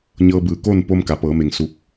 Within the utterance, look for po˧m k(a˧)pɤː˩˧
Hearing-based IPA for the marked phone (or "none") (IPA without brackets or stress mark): a˩˧